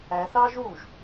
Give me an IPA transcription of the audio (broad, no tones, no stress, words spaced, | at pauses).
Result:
æ θɑʒ uʒ